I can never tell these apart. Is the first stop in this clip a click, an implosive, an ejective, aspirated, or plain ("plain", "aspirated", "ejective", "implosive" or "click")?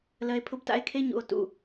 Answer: aspirated